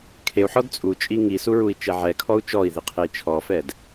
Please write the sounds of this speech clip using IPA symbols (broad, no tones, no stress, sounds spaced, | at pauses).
kʰ e u̯ ħ ɔ d t͡sʼ u t͡ʃʼ i ŋ i s u ɹ u i̯ t͡ʃ ɛ ʕ ɛ kʰ ɔ u̯ t͡ʃ ɔ i̯ ð i qʰ e i̯ t͡ʃʰ ɔ f ɛ d